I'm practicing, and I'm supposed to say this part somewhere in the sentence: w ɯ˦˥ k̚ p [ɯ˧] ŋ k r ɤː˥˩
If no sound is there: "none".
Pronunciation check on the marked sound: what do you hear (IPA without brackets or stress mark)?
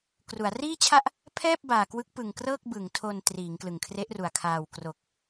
ɯ˨˩